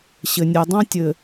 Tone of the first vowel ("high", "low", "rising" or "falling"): low